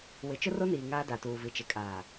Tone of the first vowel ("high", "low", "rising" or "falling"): rising